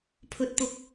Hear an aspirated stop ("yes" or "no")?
yes